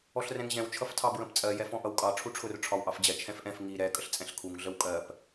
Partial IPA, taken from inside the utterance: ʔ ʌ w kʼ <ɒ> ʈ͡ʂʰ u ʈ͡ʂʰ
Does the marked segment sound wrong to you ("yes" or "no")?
yes